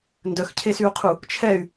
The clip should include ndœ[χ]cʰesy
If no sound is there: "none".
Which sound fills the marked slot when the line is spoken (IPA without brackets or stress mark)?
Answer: x